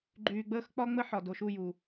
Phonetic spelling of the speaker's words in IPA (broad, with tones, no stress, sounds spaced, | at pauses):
ɡ͡ǃ yː˨ ɡ͡b əː˦ x k͡p ɒ˦ ŋ͡m ə˦ ħ ɒ˨ d o˨ ʃ u˦˨ j u˨